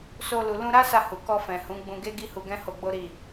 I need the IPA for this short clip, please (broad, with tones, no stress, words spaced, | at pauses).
so˧ lu˨lũ˧ ɾa˦sa˧hu˨ kɔ˧fɛ̃˨ hũ˨˦ ɡ͡bũ˧ɡe˦ ɡi˦hu˧ɡɛ̃˦ ho˧ɡ͡bo˦ɾi˦˨